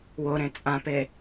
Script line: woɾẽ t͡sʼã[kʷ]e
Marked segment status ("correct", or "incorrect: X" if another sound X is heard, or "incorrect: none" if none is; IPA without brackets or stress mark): incorrect: p